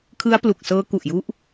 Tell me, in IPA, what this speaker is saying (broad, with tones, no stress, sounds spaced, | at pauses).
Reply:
kʰ ɯ˦˥ a̯ p l u˨˩ k̚ s ɤː˦˥ k u˨˩ ʔ j u˦˥ ʔ